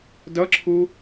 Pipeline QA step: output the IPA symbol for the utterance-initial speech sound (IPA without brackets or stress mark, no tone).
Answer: d